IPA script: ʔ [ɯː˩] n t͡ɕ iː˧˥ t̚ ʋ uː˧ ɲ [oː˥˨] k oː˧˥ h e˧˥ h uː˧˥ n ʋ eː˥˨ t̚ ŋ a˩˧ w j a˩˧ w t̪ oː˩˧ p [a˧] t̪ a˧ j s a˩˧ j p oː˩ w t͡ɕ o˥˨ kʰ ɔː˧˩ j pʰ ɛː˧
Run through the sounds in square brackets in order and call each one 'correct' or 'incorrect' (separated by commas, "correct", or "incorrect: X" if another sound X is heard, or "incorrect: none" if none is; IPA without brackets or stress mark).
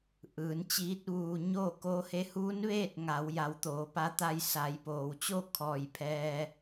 incorrect: ɯː˩˧, correct, incorrect: a˧˥